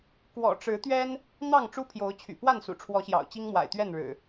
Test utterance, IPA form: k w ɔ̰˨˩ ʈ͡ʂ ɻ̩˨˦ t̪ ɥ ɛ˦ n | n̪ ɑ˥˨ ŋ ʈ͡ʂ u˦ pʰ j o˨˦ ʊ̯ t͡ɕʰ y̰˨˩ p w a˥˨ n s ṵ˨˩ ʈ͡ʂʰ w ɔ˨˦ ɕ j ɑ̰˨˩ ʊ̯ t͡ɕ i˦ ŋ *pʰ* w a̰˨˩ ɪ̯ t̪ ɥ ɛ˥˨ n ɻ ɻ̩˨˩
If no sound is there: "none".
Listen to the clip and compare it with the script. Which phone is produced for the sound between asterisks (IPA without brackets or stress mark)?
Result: m